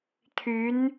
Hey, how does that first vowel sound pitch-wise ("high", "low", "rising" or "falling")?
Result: rising